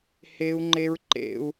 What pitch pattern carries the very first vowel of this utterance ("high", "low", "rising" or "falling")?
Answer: high